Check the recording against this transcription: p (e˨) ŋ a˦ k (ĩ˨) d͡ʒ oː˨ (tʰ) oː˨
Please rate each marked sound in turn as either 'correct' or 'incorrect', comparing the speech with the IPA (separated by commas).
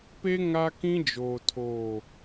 incorrect, incorrect, correct